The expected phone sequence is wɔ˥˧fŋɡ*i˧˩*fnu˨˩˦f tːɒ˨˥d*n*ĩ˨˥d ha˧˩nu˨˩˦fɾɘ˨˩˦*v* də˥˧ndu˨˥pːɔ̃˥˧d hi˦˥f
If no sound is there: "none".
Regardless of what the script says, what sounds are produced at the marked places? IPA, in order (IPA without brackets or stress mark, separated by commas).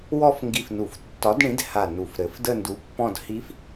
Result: i˧˩, ɳ, f